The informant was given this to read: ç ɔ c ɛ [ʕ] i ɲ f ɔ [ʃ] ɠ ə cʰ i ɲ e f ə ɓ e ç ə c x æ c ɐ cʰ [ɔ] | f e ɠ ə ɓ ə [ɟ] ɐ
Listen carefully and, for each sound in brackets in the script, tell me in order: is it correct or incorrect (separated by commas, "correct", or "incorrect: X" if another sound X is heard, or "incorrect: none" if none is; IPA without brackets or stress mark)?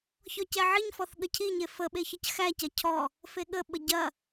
correct, incorrect: θ, correct, correct